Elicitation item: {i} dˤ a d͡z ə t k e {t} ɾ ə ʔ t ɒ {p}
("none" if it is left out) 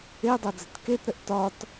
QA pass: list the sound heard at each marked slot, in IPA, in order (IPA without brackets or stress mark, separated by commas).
e, t, t